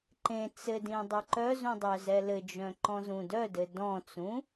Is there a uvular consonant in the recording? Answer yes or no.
no